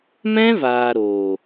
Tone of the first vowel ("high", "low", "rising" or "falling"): high